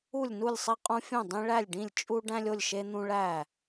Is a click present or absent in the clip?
absent